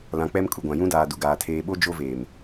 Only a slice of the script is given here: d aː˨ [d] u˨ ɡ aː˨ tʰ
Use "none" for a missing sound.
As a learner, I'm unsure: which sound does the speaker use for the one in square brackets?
d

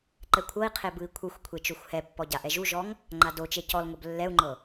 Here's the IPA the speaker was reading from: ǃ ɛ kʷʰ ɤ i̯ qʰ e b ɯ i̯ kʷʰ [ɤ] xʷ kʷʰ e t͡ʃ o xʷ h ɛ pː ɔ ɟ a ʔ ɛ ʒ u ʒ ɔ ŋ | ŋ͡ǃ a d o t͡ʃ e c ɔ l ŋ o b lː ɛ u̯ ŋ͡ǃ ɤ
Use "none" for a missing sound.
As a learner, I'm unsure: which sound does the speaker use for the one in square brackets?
ɯ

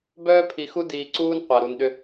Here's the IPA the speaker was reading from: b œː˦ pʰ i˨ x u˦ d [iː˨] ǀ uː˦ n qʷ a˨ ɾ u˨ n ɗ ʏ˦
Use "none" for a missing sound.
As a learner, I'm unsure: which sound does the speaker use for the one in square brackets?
iː˨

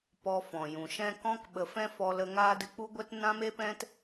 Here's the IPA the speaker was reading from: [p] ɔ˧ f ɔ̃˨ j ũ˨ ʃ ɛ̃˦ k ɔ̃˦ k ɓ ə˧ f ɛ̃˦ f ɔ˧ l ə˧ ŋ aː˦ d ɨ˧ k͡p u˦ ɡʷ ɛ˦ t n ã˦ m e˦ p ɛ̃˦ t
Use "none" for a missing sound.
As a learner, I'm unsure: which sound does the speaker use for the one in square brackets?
p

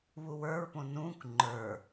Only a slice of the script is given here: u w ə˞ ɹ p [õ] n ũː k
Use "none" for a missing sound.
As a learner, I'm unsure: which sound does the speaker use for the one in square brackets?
õ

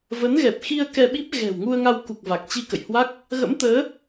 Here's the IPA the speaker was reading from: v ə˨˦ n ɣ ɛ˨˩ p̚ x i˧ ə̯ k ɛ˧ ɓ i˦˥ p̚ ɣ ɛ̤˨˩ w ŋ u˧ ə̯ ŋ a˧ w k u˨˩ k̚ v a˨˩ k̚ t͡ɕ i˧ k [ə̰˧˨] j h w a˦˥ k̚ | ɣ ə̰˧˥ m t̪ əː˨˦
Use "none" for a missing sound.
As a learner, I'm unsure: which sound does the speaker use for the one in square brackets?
ə̰˧˨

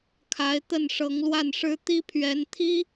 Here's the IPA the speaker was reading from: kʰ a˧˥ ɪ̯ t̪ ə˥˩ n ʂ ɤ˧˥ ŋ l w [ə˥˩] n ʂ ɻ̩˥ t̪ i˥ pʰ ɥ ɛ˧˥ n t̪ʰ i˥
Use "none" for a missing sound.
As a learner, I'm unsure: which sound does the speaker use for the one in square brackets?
a˥˩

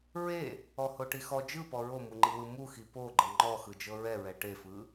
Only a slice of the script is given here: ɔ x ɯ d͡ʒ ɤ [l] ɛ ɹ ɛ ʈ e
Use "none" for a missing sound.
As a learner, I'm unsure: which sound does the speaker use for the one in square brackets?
ɹ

